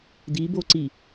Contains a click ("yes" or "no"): yes